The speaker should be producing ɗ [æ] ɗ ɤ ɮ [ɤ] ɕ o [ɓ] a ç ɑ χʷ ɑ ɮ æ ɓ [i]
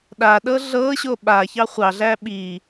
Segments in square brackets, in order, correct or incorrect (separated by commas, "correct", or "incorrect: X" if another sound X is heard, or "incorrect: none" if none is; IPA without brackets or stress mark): incorrect: a, correct, correct, correct